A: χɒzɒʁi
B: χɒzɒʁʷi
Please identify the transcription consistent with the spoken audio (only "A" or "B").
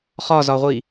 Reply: B